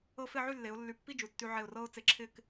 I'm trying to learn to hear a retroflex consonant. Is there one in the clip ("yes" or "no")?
no